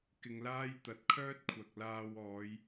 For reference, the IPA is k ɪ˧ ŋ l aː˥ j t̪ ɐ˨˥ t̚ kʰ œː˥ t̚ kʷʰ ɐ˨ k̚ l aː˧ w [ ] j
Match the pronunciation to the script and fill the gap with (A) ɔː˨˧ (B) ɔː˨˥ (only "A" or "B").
A